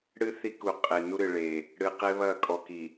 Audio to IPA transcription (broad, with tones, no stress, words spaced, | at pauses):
ɽɨ˦ θi˦ku˨ qʼe˨ nu˦ɾɨ˨ɭe˨ | ɽɨ˨qe˦βɐ˦˨ kʼɔ˨ki˨